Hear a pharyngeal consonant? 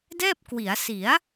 no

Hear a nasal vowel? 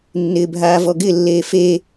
no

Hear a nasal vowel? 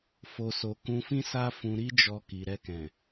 yes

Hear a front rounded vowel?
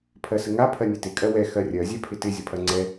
no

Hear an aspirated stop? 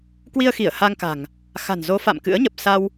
no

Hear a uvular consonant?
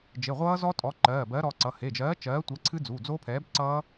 yes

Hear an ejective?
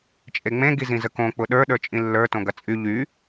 yes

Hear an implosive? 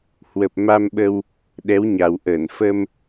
yes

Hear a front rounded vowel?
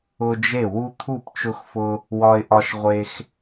no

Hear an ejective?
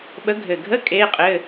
yes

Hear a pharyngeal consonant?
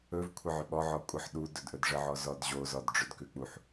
yes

